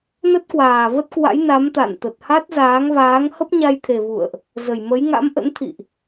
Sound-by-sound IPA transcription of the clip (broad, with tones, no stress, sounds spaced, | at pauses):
n ə˦˥ t̚ k w aː˨˩ v ə˦˥ t̚ k w a̰˧˥ j n a˨˦ m t̪ a̰˧˨ n t̪ ə˨˩ t̚ h a˦˥ t̚ z aː˨˦ ŋ v aː˨˦ ŋ h ə˦˥ p̚ ɲ a˧ j t̪ʰ e˨˩ v ṵ˧˨ ə̯ ʔ | z ə˨˩ j m ə˨˦ j ŋ a̰˧˥ m ʔ ə̰˧˥ n t̪ʰ ḭ˧˨ ʔ